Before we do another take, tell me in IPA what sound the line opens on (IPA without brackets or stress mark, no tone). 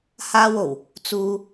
h